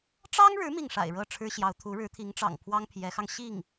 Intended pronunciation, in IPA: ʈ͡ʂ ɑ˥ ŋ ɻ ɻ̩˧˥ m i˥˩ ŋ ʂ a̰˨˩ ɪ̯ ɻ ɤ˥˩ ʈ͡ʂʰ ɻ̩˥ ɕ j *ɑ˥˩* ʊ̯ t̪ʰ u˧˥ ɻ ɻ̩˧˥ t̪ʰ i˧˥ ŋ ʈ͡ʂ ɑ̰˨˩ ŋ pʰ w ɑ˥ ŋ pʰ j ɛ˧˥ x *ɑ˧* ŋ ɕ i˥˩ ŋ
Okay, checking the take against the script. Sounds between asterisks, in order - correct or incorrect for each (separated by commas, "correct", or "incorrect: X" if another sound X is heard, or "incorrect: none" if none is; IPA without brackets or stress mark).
incorrect: ɑ˧˥, correct